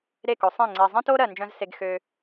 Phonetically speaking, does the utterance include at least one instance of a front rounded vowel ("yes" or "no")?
yes